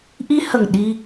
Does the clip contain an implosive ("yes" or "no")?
yes